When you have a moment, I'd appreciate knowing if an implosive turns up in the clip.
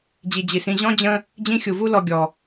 no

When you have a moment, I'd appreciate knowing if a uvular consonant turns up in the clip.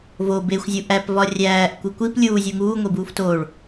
no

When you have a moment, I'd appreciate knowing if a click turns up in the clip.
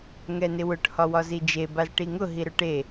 no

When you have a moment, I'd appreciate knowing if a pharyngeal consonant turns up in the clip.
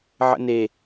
yes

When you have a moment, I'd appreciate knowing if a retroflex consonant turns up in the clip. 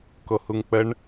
yes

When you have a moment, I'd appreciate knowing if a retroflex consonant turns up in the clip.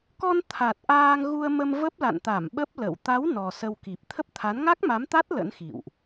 no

